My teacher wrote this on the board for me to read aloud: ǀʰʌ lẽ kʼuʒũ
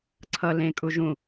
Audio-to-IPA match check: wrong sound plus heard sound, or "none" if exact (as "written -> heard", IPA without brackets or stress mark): none